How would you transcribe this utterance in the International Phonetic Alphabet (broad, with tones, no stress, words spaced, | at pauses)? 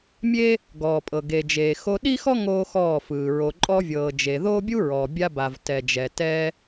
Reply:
mʲe˦ | ɡɔː˨pʼɤ˨ ɡe˨d͡ʒeː˨ xo˧ɗi˦xɔ˦ ŋoː˦xɔː˦˨fɯː˨ ɹo˨ǃʼɔ˧vʲɤː˨ d͡ʒe˨ðoː˦bʲu˦ɹɔ˨ bʲa˧ba˨v tɛ˨d͡ʒɛ˨ tɛ˦